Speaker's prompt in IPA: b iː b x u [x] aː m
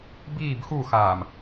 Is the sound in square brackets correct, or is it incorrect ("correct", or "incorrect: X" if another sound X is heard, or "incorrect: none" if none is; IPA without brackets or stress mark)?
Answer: correct